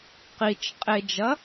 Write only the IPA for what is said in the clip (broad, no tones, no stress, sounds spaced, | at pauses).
q i t͡ʃ qʼ e d͡ʒ ɐ